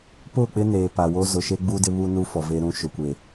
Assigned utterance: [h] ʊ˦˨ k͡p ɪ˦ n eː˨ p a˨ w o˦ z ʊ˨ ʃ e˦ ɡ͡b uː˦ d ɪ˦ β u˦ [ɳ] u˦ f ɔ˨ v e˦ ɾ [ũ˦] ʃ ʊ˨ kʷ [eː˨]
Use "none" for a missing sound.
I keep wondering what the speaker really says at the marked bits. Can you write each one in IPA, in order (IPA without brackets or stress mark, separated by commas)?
p, n, ũ˦, e˨